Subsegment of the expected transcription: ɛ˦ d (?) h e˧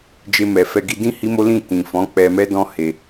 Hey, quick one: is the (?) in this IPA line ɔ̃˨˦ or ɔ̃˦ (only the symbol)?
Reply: ɔ̃˦